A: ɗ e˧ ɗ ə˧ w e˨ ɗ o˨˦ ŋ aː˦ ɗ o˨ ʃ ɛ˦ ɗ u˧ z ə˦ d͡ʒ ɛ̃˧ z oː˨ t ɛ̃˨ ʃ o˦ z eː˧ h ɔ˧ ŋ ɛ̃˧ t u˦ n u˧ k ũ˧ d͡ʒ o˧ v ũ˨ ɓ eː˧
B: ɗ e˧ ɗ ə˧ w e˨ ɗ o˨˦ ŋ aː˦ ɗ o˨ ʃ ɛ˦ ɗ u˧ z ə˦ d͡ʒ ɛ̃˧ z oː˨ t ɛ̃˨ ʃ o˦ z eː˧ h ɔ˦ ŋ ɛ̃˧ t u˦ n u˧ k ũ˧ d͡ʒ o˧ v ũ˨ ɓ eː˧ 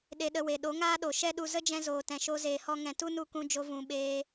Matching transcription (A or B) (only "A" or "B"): B